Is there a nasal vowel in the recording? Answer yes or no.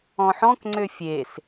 yes